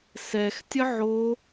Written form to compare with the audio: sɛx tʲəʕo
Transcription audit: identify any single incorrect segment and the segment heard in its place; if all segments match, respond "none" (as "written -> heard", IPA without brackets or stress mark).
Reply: none